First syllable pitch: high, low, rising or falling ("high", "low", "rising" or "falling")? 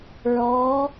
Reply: rising